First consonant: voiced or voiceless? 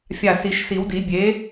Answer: voiceless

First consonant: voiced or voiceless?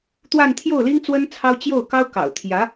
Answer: voiceless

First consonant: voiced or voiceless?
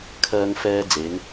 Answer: voiceless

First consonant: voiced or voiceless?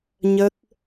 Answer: voiced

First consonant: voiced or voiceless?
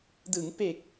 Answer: voiced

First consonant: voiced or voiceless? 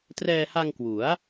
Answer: voiceless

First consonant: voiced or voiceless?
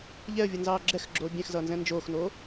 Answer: voiced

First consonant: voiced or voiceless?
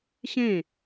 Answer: voiceless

